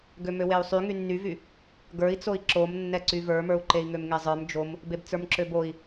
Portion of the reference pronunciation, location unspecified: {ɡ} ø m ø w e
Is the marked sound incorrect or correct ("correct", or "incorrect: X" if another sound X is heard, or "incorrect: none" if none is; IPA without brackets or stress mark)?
correct